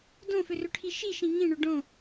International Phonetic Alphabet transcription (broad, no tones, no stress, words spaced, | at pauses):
dõfʏrʏʈʰi ʃiʃĩ ŋĩɳʏ ɖõ